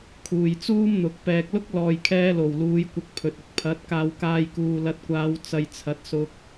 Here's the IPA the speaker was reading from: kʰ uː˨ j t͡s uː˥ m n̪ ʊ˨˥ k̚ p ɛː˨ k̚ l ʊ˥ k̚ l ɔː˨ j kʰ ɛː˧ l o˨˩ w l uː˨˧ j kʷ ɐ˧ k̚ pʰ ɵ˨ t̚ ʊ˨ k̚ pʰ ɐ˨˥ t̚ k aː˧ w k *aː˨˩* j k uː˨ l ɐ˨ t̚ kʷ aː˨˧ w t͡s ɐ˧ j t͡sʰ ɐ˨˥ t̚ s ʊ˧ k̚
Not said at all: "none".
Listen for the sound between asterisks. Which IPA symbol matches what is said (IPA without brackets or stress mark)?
aː˧